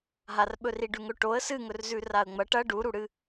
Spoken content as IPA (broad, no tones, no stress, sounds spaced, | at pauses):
ɦ a r ɓ ɵ r i ɖ ʉ ŋ ɵ ʈ o ə̯ s ɨ ŋ ɵ r z ʉ r a ə̯ ŋ͡m ɐ ʈ ɐ ɖ u ɾ u ɽ ɨ